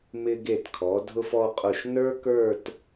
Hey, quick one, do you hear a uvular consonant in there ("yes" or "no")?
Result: yes